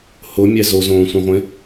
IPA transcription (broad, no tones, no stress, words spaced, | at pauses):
hʊmʲɛ zozõːsʷĩʁʷẽ